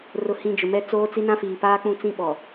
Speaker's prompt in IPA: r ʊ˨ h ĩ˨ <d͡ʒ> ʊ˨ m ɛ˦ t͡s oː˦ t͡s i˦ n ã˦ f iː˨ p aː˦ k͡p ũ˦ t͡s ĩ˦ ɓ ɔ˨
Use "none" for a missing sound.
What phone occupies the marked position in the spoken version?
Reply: d͡ʒ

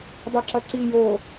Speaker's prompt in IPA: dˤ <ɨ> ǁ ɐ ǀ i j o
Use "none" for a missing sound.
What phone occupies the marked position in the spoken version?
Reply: e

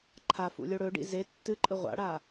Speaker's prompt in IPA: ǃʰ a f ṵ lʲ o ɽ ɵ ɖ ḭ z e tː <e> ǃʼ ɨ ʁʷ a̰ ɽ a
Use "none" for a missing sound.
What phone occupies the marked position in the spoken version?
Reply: ɨ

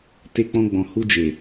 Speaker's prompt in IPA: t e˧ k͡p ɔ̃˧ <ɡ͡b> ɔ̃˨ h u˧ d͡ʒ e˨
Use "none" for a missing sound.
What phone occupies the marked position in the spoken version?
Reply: ɡ͡b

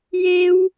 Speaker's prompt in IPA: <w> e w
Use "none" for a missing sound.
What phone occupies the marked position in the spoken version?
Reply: j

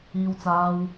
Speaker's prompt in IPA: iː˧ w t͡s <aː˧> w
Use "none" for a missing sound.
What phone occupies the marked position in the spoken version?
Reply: aː˧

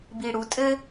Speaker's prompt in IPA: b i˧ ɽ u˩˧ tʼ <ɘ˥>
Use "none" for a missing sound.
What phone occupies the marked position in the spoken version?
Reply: ɘ˥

